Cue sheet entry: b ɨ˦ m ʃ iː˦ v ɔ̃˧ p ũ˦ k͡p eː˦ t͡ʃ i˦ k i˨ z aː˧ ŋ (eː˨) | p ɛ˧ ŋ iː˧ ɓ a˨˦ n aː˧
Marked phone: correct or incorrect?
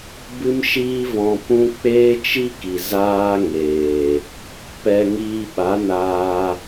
correct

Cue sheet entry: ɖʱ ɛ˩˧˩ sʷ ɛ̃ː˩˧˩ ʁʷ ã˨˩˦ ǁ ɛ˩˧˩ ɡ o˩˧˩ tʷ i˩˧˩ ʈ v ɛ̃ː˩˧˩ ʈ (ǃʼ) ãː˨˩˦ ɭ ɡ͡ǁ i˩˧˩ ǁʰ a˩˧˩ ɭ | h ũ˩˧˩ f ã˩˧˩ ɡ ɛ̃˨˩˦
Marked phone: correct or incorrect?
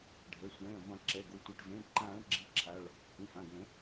incorrect: ǃ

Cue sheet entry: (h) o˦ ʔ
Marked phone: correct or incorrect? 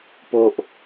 incorrect: p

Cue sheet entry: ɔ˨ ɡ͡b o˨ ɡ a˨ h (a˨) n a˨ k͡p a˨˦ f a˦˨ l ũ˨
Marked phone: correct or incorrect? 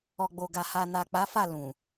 correct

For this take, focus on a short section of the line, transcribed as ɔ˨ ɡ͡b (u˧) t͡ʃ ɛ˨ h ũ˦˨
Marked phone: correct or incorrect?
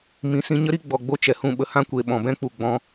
incorrect: o˧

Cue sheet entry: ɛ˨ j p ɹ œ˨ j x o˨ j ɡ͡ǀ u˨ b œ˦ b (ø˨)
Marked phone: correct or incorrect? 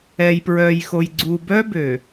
correct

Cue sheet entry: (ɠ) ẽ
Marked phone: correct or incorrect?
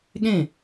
correct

